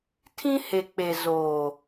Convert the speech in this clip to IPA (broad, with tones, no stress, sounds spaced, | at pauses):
tʰ ĩ˦ h e˨ k͡p e˨ z oː˨